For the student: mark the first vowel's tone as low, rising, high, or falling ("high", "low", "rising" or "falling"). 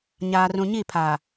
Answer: low